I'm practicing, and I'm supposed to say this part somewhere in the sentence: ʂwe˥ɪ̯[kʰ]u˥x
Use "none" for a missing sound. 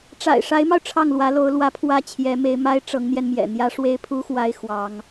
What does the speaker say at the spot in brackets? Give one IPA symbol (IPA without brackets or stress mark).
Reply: pʰ